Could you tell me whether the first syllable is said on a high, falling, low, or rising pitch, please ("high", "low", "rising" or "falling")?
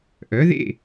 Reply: rising